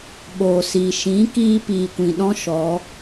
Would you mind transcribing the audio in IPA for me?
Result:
ɓoː˨siː˨ ʃĩ˨˦kiː˧ piː˨kʷĩ˨ɗɔ̃˦ ʃɔ˨˦

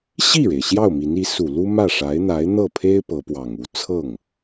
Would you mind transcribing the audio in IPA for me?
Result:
ɕi˥˩ɻe˩ɪ̯ ɕjɑ˥˩ʊ̯mi˧˥ni˧˥ su˨˩lu˥ mä˥˩ʂa˧˥ɪ̯n̪a˧˥ɪ̯ n̪ɤ˥˩pʰe˥ɪ̯ pɤ˧˥pwɑ˨˩ŋu˥˧ t͡sʰɤ˥˩ŋ

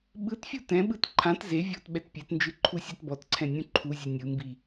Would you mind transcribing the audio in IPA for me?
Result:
ɓɯtfʲu tɛ̃ɓɯt ǃʰãt ze vʲɔt ɓɛtpʲɛtnd͡ʒɯ ǃʰusʲætbɔtǀʰɛ̃ nʲũǃʰuzʲɯ nʲɯmbi

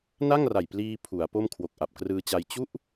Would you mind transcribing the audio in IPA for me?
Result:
na˥˩ŋ ra˨˩jpliː˧ pʰu˩˦a̯po˥˩m kʰwo˨˩k̚ʔa˨˩p̚krɯː˧t͡ɕa˧j t͡ɕu˥˩ʔ

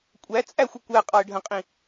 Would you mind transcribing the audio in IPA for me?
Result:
kʷʼæ t͡sʼæxʷɪ kʷæ qʼɑə̯ɖʱə̃qʼĩ

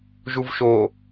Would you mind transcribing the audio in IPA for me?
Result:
ʒuvʃo

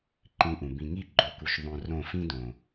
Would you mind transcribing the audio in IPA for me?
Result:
ǃĩ˧ʔũ˨ bĩ˨ŋi˦˨ ɡ͡ǃo˦ku˧ʃ ðˤõ˧ rõ˦˨fĩ˦dõ˨

